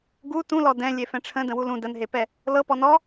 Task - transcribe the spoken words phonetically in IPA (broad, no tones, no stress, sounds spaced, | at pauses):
ɡ u t ũ l ɔ d ɛ̃ lʲ e f ɛ̃ ʈ͡ʂʰ ə̃ d ə̃ w u l ũ d ə n ɦ e p ɛ | l ɤ p ɔ n ɔ